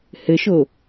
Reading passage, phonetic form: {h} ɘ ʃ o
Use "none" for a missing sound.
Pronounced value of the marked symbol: h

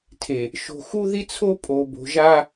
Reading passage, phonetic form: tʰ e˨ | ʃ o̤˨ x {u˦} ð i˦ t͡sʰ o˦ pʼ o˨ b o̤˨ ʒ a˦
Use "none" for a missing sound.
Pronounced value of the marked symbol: u˦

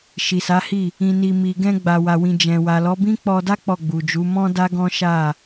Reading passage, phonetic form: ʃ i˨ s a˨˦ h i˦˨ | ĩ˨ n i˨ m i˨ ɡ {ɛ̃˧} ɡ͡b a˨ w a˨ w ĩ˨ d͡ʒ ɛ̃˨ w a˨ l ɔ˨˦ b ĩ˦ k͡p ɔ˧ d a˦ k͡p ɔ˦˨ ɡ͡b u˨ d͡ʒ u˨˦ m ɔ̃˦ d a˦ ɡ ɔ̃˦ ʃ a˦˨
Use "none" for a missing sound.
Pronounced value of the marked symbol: ɛ̃˧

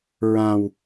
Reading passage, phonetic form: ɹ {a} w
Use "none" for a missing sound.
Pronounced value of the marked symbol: ã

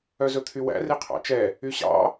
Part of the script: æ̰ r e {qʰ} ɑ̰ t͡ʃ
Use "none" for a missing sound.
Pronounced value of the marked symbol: qʰ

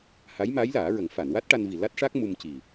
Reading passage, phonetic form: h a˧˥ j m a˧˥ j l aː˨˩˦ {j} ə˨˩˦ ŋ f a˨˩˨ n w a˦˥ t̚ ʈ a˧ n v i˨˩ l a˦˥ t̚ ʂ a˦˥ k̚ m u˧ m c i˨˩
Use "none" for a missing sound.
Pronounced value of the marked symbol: ɹ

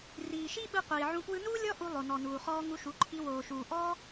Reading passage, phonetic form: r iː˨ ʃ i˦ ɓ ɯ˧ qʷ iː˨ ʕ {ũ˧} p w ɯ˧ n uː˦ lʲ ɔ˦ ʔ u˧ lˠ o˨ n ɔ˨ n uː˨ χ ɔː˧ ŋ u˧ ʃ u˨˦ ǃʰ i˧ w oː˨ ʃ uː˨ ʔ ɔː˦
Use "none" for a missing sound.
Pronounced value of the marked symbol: ũ˧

